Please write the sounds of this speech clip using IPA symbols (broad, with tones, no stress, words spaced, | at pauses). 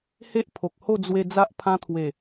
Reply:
he˦ʔpʰo˨k̚ho˥˧ d͡zwe˧ d͡za˦ʔpʰã˦ t̪ʰwe˨˩